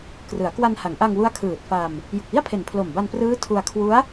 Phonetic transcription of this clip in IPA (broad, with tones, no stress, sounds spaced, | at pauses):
k r ɯ˩˦ a̯ k w a˧ n h a˩˦ ŋ ʔ a˧ ŋ w u˦˥ a̯ kʰ ɯː˨˩ t̚ f a˧ m | j u˨˩ k̚ w i˥˩ a̯ pʰ e˨˩ n pʰ l o˨˩ m b a˧ n p r ɯː˦˥ tʰ u˧ a̯ kʰ w u˦˥ a̯